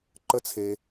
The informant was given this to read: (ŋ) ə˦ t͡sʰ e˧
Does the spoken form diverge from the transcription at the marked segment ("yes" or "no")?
yes